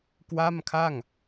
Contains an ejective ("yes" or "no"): no